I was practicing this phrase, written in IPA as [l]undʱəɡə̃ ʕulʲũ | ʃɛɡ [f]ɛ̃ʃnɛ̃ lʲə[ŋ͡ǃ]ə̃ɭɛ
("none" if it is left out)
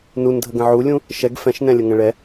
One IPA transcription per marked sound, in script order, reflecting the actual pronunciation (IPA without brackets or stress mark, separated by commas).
n, f, ŋ